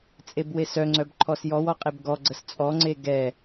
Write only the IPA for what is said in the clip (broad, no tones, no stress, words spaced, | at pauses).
t͡sʼebwesœŋ͡ǀœb ǃʰɔsjɔwɔ qʼebɡɔɡ͡ǀəs t͡sʼɔŋ͡ǀe ɡɛ